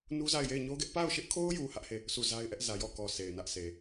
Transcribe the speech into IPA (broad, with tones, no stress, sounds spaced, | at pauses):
n u˦ z a˦˨ ɪ̯ j e˦˨ ɪ̯ ɲ o˦ ɡ ɛ˦ ʔ p a˦˨ ʊ̯ ʃ ɪ˦ ʔ kʰ o˦ ʊ̯ j u˨ h ä˦ ʔ h e˦˨ | s u˦˨ z a˦ ɪ̯ ʔ ɛ˦ ʔ z ä˨ j ɔ˦˨ k ɔ˨ s e˨ ɪ̯ n ä˦ ʔ s e˨